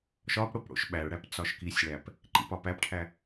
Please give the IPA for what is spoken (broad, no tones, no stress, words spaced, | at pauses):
ʃɒpɽop ɽo̰ʃɓæɭɽæp t͡sɒʃkisʲɭæp | ǃḭpɒpæpʈʰæ